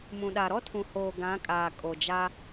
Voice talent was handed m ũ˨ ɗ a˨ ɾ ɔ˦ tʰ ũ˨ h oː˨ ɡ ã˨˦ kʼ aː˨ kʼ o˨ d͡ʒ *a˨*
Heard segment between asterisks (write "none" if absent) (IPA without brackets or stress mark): a˦